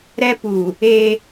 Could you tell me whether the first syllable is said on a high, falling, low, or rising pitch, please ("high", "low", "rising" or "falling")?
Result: high